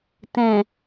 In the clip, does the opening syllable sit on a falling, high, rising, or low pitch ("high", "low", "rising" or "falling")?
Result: low